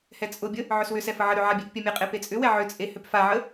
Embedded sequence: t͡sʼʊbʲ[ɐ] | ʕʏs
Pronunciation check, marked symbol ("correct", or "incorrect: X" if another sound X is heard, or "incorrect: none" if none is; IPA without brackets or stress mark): incorrect: ə